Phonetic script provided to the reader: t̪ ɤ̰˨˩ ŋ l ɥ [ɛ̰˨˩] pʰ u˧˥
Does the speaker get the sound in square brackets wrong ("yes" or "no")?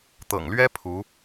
yes